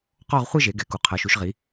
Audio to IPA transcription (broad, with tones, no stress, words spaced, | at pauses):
qɔ˥˧ʁ χʷɯ˥˧ʒe˩˧ ɡɛ˩˧ku˩˧ qʰɤ˩˧ʃu˩˧ʃʁi˩˧